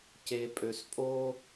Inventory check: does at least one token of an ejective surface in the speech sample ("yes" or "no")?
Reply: yes